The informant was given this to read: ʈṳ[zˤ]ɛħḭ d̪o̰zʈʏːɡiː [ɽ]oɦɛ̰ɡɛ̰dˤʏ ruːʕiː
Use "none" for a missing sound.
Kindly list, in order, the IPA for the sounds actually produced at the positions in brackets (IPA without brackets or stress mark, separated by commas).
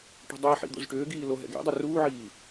dˤ, l